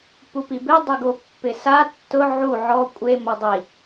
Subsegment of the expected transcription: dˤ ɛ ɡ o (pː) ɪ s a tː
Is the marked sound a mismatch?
no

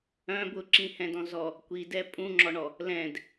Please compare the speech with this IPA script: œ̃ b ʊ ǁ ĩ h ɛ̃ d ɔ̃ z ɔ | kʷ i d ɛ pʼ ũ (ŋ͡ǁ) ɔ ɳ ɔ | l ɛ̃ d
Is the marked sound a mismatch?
no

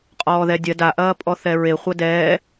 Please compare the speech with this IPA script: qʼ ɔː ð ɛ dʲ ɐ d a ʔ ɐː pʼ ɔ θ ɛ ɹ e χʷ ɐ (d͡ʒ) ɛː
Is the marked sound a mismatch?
yes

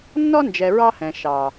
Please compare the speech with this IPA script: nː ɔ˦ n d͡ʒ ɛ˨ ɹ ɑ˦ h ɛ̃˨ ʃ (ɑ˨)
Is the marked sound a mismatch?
no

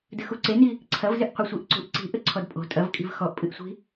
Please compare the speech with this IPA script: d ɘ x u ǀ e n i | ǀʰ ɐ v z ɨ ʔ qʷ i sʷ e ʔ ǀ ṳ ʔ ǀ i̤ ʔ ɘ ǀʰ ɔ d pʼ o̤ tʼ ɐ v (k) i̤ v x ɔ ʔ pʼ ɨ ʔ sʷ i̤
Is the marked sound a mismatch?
yes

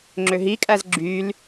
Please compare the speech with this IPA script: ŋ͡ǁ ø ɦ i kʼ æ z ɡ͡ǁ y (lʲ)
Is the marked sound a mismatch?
yes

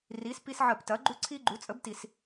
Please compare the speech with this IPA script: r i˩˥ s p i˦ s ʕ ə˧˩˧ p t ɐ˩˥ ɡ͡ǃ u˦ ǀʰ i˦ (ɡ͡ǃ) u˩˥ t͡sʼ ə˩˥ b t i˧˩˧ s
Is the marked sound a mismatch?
no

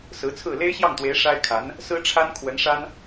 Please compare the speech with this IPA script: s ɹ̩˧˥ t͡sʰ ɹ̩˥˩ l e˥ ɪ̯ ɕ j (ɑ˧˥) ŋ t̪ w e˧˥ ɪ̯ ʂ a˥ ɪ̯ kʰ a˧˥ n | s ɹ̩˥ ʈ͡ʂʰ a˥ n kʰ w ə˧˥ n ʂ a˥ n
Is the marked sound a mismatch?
yes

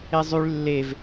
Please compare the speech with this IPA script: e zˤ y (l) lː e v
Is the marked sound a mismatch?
yes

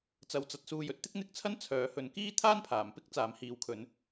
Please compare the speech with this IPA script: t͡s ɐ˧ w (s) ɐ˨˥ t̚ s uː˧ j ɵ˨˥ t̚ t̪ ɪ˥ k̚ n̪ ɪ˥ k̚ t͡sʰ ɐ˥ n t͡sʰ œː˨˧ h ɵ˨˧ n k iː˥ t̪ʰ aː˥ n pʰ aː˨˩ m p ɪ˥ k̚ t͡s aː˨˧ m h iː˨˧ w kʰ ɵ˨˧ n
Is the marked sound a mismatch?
yes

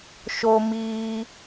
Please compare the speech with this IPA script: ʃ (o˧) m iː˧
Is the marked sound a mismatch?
no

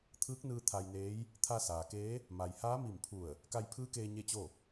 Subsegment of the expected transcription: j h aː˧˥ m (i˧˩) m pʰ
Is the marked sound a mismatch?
no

